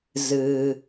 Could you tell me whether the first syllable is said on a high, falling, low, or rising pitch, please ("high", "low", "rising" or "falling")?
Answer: low